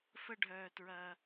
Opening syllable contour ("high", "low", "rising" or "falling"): high